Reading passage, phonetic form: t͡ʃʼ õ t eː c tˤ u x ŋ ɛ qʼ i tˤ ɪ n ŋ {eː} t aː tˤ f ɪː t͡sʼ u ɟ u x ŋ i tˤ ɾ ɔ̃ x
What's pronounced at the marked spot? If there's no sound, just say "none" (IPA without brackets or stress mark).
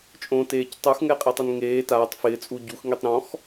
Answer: eː